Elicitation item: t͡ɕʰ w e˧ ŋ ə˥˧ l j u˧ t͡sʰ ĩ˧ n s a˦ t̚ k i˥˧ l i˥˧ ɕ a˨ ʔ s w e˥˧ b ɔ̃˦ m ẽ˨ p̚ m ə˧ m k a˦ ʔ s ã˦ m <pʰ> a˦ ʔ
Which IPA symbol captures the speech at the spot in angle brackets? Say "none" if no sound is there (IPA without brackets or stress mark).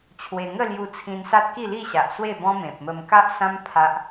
pʰ